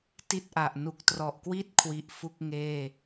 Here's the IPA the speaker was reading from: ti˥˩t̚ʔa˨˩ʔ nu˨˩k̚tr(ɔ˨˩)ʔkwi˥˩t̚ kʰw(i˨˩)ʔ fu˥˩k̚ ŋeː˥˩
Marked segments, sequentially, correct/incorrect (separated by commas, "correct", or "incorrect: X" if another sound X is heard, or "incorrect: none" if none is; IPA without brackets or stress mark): correct, incorrect: i˥˩